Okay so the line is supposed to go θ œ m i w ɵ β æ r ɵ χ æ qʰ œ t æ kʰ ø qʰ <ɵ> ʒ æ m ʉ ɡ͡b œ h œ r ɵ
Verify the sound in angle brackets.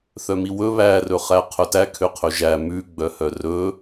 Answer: correct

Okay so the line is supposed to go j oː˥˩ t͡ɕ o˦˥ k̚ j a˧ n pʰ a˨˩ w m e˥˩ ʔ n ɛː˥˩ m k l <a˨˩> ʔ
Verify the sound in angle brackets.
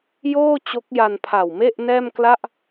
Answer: incorrect: a˥˩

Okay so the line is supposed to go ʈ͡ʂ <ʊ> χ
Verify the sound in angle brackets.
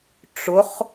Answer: correct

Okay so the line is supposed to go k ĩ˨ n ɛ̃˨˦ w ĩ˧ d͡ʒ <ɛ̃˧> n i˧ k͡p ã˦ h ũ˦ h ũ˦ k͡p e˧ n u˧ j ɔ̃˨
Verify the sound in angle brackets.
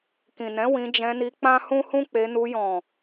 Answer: correct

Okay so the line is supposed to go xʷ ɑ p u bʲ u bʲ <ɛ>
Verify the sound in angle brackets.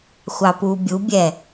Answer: correct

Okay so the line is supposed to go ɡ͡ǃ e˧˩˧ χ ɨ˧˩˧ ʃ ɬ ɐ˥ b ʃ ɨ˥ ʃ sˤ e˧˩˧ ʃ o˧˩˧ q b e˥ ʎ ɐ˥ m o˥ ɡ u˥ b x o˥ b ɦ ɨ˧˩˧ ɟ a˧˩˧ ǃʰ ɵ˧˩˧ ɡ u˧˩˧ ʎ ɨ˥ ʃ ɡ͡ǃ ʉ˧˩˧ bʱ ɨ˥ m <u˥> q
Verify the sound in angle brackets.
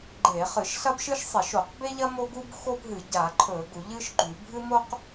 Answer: incorrect: o˥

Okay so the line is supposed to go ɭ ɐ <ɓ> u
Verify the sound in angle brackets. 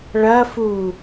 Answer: incorrect: f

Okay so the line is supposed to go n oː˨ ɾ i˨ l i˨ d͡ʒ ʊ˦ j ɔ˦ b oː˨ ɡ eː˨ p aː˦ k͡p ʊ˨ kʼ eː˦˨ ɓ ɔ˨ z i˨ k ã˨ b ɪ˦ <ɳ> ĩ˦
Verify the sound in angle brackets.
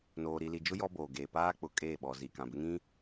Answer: incorrect: ŋ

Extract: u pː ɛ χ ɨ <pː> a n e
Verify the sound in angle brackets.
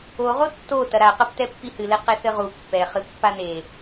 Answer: correct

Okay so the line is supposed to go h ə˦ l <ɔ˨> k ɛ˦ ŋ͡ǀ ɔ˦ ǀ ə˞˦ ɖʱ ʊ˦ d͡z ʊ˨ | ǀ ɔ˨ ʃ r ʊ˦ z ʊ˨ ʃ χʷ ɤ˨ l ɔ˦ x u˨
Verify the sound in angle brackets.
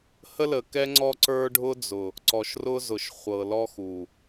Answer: incorrect: ə˨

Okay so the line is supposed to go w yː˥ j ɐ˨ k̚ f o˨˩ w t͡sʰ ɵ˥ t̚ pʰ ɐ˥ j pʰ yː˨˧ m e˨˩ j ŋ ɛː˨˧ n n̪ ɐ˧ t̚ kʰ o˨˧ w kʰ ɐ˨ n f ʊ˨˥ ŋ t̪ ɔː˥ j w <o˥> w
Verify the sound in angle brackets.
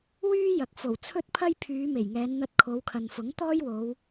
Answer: incorrect: o˨˧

